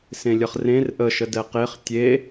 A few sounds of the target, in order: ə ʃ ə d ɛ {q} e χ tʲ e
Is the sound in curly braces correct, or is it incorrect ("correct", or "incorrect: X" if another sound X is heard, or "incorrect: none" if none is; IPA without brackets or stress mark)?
correct